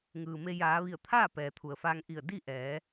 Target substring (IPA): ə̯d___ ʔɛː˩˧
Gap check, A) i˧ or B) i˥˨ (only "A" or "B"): B